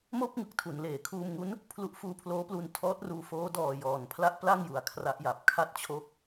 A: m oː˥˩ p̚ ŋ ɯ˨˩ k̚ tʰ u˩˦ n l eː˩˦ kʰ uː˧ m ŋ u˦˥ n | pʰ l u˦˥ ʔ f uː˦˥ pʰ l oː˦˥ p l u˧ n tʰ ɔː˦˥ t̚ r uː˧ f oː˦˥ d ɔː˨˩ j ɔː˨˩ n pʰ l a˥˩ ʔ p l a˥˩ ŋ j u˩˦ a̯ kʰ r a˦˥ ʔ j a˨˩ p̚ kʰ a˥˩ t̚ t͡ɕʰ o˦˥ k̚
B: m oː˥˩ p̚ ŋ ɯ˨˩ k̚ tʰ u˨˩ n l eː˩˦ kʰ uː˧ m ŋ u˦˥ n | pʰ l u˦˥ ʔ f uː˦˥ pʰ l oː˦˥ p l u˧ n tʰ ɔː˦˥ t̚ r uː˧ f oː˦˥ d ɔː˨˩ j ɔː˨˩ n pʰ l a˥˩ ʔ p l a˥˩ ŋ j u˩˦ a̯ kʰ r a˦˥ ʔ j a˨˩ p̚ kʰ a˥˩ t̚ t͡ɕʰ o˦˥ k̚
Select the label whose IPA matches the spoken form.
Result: A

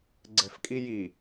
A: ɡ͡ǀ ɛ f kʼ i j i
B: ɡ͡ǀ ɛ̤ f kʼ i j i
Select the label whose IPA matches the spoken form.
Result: B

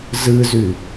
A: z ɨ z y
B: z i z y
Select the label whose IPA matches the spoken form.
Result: A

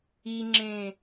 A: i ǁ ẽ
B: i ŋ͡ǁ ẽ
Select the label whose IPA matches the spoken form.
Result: B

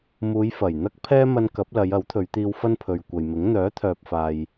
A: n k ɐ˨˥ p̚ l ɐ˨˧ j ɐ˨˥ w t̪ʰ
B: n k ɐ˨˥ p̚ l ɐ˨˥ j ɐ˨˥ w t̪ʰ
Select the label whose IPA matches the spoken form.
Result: A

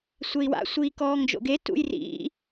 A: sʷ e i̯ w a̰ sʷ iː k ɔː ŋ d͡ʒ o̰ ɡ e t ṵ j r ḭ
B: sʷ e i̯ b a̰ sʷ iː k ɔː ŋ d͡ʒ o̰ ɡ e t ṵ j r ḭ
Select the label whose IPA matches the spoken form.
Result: A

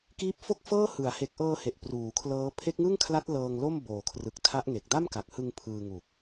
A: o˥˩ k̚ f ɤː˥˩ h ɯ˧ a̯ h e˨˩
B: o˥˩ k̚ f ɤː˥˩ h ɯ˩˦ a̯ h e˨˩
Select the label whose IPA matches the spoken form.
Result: B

